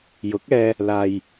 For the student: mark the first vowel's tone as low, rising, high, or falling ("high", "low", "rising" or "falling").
rising